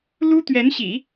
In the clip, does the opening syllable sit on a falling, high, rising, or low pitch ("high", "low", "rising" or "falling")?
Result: high